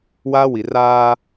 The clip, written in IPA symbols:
waː˦wi˨ raː˦

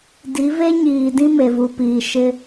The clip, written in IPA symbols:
di˨˦ve˦ɲiː˨ dĩ˦me˨vu˨piː˨ ʃɪ˦

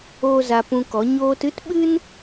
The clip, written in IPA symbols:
oː˦za˧pũ˧kɔ˨˦ ɲoː˧t ɨ˦tɓɨ˦n

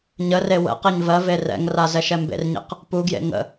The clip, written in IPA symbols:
ɲəre wə̰ qeɲvɜve rɛ̰ŋra zɛʃɛmbḛrɲḛq | puɡjḛ ŋə̰

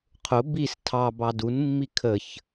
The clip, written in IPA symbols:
qʰʊ bis tʰɑbɑ dunmːi kʰəç

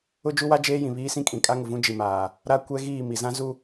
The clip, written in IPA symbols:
ʊ˦d͡ʒu˦wa˦ d͡ʒeː˦ jĩ˨ βiː˦ sĩ˦kʼĩ˨ kʼa˦ŋʊ˨vũ˦ d͡ʒi˨maː˨ | ɾa˦kʷɛ˦ɣiː˦˨ mi˨zã˦zu˦

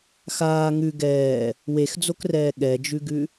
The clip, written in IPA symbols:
xaː ŋʉ ɡɛː | wexd͡zokrɛː ɠɛd͡ʒʉɡʉ

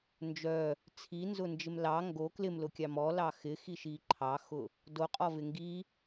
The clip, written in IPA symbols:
nd͡ʒœ | t͡sʰinzʊnd͡ʒɪm lɑ ŋɡo klɪmlʊkʲɑm ɔlɑ xɪxiʃi ǃʰɑxʊ | doqʼɔvɪ ŋɡi

